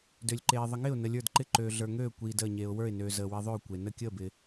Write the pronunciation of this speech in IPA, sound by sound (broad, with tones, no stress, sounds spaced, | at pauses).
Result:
d ø˨ lʲ ǃ eː˨ ðˤ ɪ˨ ŋ ɪː˦˨ ʊ̯ n ə˨ lʲ ə˞˦˨ d ǃ ɪ˦˨ ǃ øː˨ ɮ ə˞˨ ŋ øː˦˨ kʷ iː˨ d əː˦˨ ɲ eː˨ ʊ̯ w ə˞˦˨ ɪ̯ n øː˨ z əː˨ w i˨ ðˤ ø˦˨ ʊ̯ kʷ e˨ n ə˦˨ kʲ əː˦˨ b ɪ˨